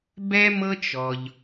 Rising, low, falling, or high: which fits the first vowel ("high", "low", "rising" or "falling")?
high